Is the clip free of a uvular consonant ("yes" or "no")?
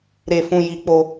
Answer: yes